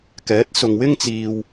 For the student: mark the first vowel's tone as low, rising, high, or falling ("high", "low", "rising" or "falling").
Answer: rising